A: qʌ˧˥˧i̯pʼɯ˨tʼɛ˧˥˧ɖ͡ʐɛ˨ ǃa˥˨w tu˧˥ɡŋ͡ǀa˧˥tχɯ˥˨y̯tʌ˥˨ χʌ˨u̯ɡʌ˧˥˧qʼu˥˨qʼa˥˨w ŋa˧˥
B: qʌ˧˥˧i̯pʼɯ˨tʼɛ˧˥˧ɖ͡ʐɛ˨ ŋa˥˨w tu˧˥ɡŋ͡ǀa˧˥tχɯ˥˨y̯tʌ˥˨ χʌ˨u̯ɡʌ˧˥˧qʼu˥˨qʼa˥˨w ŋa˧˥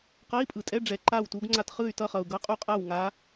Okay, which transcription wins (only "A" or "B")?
A